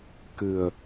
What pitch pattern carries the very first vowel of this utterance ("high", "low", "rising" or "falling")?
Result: low